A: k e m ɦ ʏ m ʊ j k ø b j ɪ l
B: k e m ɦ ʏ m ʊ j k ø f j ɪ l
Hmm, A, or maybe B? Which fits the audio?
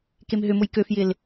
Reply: B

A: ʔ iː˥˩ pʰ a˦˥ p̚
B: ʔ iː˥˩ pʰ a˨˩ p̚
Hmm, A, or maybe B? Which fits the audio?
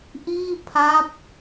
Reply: A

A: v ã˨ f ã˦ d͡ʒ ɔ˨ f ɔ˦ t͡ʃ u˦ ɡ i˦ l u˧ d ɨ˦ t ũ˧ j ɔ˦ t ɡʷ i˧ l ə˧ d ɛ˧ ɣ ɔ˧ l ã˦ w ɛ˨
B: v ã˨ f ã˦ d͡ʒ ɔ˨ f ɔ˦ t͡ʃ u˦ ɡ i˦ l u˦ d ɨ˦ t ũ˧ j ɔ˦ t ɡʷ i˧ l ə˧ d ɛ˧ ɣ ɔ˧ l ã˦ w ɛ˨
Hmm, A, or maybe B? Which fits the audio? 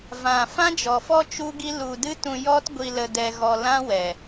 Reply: A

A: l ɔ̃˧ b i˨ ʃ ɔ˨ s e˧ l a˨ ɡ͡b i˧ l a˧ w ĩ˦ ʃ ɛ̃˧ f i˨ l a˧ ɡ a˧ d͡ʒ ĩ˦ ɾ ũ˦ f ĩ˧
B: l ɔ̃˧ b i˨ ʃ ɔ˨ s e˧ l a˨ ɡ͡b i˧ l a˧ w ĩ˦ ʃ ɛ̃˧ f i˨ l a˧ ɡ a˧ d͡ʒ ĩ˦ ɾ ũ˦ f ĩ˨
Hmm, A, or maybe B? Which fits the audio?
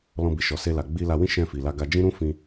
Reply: A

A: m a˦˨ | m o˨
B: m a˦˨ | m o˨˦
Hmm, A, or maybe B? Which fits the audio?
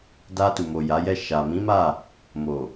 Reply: A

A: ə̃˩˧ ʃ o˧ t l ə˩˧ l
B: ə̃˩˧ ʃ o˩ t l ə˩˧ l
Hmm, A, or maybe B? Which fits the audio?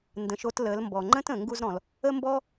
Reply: A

